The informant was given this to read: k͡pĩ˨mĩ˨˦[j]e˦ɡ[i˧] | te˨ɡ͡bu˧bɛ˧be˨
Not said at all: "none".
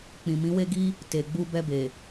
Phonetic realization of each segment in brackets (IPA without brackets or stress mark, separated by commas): w, i˦